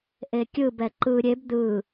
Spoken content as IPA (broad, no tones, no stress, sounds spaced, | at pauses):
ʔ e kʲ ɯ b ɛ ǃ ɯ ɾʲ e b d̪ ɯ